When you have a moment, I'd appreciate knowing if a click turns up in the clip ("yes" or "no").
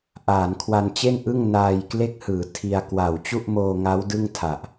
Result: no